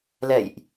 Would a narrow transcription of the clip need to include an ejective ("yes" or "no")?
no